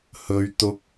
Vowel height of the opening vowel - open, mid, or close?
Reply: mid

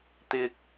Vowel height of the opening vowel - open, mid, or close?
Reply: close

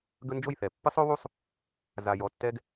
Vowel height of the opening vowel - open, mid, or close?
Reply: mid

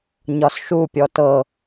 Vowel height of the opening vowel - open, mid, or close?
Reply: open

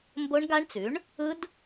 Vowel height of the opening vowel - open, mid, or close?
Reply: mid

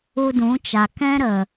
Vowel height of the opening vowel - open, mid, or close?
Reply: close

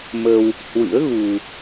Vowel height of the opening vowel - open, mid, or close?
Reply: mid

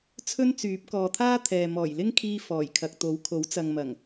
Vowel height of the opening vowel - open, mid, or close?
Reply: mid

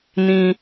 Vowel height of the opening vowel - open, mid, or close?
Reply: close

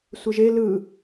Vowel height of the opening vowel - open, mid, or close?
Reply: close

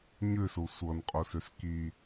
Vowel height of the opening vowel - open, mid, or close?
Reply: close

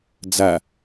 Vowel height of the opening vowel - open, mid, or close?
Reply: open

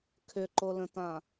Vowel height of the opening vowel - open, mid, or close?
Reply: close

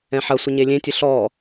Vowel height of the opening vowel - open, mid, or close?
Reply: mid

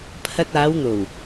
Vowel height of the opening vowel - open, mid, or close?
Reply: open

